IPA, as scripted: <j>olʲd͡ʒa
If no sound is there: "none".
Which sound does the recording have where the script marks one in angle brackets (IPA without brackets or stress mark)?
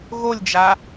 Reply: ɣ